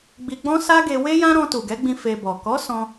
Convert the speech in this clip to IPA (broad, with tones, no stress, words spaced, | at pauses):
ɡ͡bi˧ɡ͡bɔ̃˦ sa˦ɡe˧ we˦jã˦ɾɔ̃˧ tu˨ɡɛ˨˦ɡ͡bĩ˧ fe˧bɔ˨ kɔ˨˦ sɔ̃˧